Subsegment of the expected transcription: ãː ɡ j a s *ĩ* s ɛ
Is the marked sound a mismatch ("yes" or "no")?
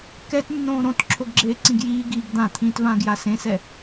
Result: yes